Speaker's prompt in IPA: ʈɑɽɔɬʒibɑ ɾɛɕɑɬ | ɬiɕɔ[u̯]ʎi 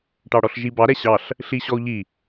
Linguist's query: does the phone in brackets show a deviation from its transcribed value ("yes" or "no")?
no